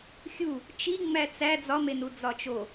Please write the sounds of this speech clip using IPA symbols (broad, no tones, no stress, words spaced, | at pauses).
xʲu | t͡ʃi ŋ͡mæt͡sæ d͡zɒmenu d͡zɒt͡ʃo